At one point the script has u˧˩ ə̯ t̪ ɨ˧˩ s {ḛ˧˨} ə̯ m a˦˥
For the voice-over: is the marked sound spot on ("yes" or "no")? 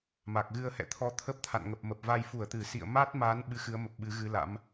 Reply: no